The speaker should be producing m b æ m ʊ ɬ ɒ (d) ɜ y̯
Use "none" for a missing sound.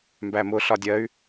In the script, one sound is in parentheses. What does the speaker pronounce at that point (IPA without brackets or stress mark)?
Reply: dʲ